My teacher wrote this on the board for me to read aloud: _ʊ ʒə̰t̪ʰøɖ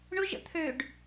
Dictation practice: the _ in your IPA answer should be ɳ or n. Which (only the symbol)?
ɳ